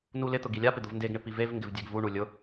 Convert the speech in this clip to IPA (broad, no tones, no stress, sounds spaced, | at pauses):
n u l ɪ t̪ ʊ ɡ i lʲ a p ɪ d̪ ʊ v n d e ɡ ɳ ɪ p i v e v ŋ ɡ ɪ v dʲ e ɡ v u ɳ u lʲ ʊ